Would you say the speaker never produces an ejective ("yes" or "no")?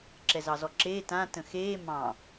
yes